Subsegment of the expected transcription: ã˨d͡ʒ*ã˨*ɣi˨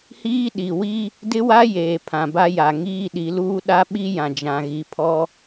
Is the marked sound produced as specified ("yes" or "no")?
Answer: yes